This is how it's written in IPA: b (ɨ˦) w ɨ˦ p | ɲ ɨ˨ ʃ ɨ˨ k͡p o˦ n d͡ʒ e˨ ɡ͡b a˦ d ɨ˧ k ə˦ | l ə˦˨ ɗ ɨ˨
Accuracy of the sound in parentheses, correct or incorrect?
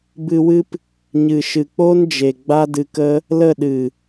incorrect